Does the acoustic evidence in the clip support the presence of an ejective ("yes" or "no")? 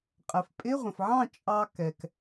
yes